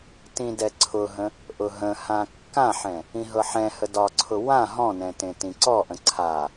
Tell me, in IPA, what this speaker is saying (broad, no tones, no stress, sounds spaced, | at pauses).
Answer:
t ĩ d ɛ ǀʰ ʊ ɦ ə̃ | ʔ ʊ ɦ ə̃ h ã kː ã ħ ɛ̃ | ĩ ɦ ɤ ħ ɛ̃ h ə d ɒ ǀʰ ʊ w ã ɦ ɔ̃ n ɛ̃ t ẽ t ĩ ǀ ɔ ʔ ə̃ ǀʰ a